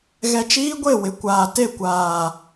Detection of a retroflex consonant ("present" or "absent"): absent